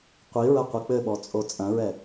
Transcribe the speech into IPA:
qʷ i ɹ ɐ qʷ i k͡p ɘ ɓ ɔ t͡sʼ o t͡sʼ ɐ̃ ɹ ɛ

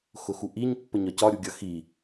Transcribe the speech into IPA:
x ʊ x u ʔ i ɲ pː ə ɲ ɒ c ɒ ɾʲ u ɡʲ ʌ x i

